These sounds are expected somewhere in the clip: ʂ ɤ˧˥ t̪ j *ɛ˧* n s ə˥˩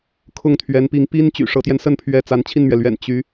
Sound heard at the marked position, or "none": ɛ˧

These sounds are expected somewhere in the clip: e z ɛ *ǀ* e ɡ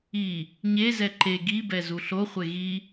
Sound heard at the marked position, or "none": ǃ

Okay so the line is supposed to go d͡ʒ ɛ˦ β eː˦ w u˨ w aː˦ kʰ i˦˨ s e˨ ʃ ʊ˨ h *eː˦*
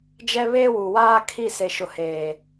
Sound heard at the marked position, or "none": eː˨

